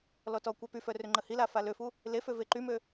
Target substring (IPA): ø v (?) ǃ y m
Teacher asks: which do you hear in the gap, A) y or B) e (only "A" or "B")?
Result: B